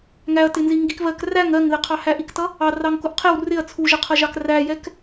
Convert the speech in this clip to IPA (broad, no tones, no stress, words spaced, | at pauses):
ŋæɐ̯tɪnziŋɡik βɜk ræŋ ɜŋðɪqʰɑhæʔ iktʌ | ɑrɑŋkʊʔ qʰɪw rɪɐ̯ t͡sʰuʒəqʰʌʒɑk ræjɛk